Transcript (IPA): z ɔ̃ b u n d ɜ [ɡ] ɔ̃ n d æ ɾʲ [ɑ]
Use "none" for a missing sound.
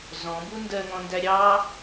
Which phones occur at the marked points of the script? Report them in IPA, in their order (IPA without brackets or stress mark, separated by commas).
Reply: ŋ, ɑ